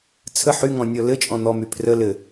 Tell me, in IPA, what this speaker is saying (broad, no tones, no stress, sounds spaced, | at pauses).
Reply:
t͡sʰ ə ħ y ŋ ɔ̃ nʲ ɔ l ɘ t͡ʃʼ ɔ̃ n̪ ɔ m y pʰ r ə l ɘ